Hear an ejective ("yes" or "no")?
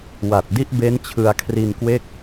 no